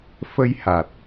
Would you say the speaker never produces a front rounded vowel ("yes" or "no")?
yes